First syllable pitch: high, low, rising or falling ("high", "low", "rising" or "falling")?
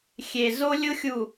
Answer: low